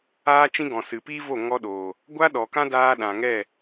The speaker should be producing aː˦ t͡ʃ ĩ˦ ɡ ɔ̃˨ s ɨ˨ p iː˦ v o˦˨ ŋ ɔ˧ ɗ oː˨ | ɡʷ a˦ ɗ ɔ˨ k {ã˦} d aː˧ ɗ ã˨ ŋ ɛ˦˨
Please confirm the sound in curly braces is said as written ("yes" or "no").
yes